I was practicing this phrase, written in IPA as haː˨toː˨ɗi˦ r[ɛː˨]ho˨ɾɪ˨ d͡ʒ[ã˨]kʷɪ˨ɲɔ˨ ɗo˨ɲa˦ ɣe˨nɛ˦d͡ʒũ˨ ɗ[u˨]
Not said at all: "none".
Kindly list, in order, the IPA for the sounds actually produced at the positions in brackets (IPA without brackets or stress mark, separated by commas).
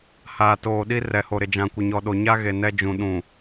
ɛ˨, ã˨, ũ˨